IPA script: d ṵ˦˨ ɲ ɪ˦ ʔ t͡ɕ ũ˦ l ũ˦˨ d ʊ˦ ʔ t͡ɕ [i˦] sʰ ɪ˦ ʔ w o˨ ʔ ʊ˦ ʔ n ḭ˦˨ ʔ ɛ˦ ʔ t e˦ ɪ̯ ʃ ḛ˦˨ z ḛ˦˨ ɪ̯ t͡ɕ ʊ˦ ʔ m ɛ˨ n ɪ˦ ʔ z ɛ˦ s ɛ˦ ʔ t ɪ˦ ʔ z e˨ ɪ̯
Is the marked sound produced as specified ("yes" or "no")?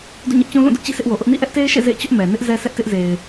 no